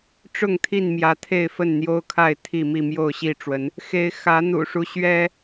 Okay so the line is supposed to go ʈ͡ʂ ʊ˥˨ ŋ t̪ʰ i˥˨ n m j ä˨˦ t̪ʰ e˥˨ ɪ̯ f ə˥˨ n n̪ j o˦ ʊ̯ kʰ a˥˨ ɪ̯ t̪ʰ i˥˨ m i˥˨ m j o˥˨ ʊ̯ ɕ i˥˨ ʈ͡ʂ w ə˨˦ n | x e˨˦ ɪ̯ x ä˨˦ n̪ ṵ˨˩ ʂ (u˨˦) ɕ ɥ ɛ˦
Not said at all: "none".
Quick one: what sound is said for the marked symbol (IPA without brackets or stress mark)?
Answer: u˦